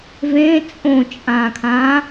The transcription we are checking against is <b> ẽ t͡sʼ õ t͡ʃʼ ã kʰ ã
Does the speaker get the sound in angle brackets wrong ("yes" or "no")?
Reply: yes